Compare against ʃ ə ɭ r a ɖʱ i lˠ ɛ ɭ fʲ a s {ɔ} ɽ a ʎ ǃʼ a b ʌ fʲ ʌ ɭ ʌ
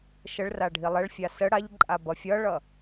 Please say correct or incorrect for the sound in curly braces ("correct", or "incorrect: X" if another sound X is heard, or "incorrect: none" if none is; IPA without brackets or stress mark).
incorrect: ə